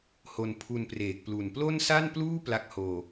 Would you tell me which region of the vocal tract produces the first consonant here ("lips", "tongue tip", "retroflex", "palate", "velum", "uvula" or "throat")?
throat